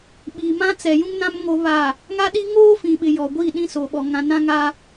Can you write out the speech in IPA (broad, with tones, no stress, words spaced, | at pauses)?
ɓi˨mã˦ t͡sɛ˨jũ˦ŋnã˦m ŋo˦βa˦˨ | ŋa˦ɗi˦ ŋoː˦fĩ˨ɓɪ˨ jɔ˨ɡʷi˦˨ ɗĩ˦so˨ɓɔ˨ ŋã˨ nã˦ŋa˦